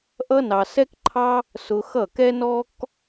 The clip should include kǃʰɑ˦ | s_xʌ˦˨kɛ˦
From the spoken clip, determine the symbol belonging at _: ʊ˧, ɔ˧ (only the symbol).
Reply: ʊ˧